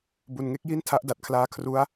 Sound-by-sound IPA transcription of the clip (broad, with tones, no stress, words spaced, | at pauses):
bu˨˩nŋe˥˩k̚ ji˥˩ntʰa˦˥ʔda˨˩t̚kʰlaː˦˥ kʰru˦˥a̯